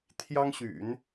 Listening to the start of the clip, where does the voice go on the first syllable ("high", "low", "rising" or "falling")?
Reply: high